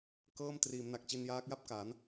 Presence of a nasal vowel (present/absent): absent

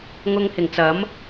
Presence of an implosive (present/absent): absent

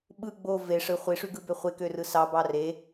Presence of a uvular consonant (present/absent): present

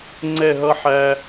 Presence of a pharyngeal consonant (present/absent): present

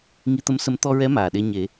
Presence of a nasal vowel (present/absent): absent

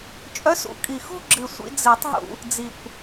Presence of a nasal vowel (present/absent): absent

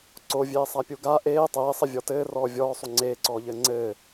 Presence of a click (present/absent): present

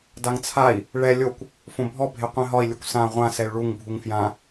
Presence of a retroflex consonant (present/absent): present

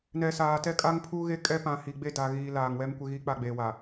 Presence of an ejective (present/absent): present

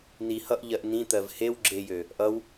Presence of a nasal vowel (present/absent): present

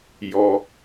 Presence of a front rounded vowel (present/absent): absent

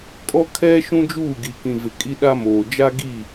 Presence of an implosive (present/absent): present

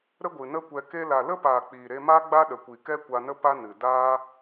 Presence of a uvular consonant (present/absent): absent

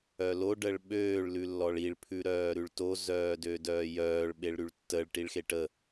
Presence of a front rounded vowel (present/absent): present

